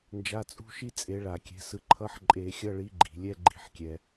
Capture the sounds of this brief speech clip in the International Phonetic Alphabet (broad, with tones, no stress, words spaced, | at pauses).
nd͡ʒa˧˥˧t͡sʼṳ˥ʃi˥ t͡sʼe˨˥ɭa˧˩˧kʲɛ̤˨˥sɯ˨˥ ǃʰʌ˧˥˧ħǃʼe˧˩˧xʲʌ˧˥˧ɭi˨˥ ɡ͡ǃi̤˩ lʲɛ˧˥˧ɡ͡ǃi̤˧˩˧ħkʲɛ˩